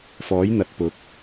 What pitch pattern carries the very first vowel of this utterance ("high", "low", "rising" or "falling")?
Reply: rising